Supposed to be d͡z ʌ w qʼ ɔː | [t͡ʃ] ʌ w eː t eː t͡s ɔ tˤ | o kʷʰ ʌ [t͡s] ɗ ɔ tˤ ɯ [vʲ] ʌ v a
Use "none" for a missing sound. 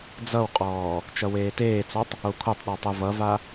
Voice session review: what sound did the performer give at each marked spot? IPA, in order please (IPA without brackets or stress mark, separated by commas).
t͡ʃ, tˤ, v